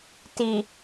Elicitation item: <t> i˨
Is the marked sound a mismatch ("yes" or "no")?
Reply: no